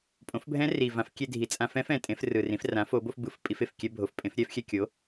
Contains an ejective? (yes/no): yes